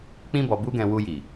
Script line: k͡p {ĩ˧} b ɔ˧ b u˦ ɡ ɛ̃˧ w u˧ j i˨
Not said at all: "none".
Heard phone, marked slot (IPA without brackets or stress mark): ĩ˦